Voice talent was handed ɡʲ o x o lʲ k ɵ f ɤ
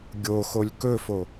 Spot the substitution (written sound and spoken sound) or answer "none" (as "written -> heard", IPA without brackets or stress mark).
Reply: ɤ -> o